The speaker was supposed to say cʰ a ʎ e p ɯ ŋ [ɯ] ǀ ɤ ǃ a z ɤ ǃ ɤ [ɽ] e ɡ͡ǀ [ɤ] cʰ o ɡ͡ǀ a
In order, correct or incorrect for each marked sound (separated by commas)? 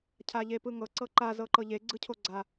incorrect, incorrect, incorrect